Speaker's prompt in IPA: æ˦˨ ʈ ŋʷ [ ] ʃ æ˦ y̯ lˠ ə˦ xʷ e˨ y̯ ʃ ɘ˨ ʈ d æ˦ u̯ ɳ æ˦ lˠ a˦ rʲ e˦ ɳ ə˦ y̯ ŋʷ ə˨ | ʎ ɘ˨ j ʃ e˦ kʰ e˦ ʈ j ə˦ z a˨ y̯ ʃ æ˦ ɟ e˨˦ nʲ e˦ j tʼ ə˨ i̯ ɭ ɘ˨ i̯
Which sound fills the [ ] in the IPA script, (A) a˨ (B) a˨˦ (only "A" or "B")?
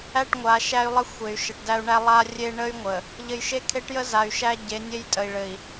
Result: B